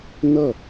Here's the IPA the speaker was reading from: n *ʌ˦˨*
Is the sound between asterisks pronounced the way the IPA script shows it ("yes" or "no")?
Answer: yes